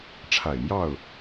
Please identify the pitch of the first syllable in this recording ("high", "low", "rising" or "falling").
low